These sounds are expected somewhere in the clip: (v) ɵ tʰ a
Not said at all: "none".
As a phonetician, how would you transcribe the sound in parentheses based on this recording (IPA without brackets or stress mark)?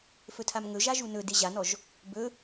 f